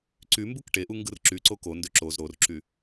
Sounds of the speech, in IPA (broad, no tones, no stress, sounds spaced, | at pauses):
ǀ y m b u k ʈ e ʔ u ŋ ɡ ɯ r ǁ y ǀ o k o n d ø ǁ o z ɾ o r ǁ y